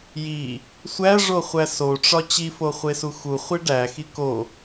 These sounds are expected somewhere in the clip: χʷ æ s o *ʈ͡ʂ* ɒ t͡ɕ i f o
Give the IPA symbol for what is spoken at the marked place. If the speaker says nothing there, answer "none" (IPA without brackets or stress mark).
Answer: ʈ͡ʂ